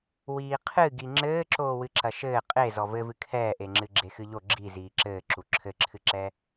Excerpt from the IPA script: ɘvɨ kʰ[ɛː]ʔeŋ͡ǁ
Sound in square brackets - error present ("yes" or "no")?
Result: no